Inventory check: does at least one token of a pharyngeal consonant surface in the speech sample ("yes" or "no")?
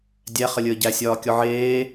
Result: yes